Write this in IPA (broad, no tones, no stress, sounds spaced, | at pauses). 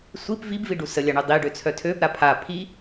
sʷ i p v i b v i ɖ u s ə lʲ a ɳ œ dˤ i ɖ ø t͡sʰ œ tʰ ø b ɾ a pʰ a pʰ i